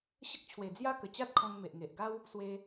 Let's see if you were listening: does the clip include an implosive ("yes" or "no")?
no